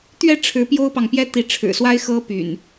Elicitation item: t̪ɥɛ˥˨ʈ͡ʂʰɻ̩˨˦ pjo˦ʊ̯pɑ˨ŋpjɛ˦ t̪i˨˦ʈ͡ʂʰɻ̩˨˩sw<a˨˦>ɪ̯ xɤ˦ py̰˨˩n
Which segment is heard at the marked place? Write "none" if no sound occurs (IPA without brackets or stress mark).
a˦